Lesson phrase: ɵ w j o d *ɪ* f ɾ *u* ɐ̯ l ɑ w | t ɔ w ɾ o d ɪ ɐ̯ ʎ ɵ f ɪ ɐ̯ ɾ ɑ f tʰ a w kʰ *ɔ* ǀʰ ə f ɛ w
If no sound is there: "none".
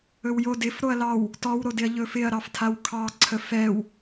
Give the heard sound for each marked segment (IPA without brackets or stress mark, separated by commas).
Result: ɪ, o, ɑ